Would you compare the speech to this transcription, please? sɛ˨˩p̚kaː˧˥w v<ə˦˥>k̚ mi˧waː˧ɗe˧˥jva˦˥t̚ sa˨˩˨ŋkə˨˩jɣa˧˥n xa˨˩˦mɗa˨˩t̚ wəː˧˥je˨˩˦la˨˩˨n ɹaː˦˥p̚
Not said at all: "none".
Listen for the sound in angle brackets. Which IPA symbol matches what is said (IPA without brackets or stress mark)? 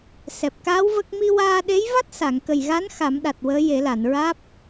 ə˦˥